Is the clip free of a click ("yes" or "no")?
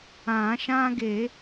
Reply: yes